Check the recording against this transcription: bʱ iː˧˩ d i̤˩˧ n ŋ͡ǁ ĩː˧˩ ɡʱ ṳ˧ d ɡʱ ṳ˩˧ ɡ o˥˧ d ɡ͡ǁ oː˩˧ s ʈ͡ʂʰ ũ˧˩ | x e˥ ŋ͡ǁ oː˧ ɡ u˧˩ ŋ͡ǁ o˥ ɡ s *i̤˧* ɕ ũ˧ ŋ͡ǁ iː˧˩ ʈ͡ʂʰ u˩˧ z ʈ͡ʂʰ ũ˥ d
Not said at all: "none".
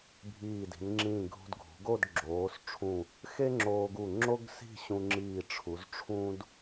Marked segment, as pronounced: i̤˥˧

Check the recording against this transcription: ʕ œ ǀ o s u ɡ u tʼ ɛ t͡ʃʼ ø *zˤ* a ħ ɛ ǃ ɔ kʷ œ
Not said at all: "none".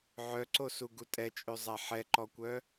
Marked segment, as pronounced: zˤ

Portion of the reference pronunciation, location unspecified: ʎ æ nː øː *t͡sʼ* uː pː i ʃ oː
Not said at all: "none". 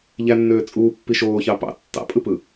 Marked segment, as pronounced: t͡sʼ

